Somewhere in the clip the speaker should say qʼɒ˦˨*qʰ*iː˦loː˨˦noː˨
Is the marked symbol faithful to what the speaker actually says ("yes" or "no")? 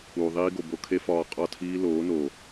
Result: no